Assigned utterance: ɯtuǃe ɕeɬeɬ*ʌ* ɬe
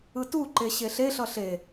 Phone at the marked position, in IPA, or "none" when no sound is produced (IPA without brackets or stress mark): ʌ